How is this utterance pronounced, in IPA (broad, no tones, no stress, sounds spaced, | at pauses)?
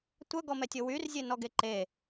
tʷ œ ɡ ɔ m ɛ tʲ o w y r zʲ e n ɔ ɡ e ǃ e